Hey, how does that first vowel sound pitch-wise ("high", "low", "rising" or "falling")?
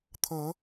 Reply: rising